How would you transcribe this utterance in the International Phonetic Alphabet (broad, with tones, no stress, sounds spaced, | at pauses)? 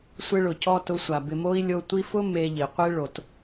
sʷ ɪ˧ ɭ ʊ˨ c ɔ˧ t ʊ˧ sʷ a˨ b ɪ˨ m o˧ i̯ lʲ o˧ tʷ i˧ f ʊ˦ m e˧ ʎ i˨ qʷ e˦ ɭ o˨ t